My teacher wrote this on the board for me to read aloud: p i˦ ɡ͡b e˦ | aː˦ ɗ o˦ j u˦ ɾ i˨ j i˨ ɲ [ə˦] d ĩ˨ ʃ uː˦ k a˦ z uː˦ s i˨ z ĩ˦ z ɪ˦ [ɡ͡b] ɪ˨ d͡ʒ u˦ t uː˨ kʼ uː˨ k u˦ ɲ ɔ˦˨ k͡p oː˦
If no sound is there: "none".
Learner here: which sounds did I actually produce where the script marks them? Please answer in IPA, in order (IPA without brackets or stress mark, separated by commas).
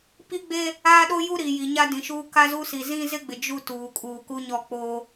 a˦, ɡ͡b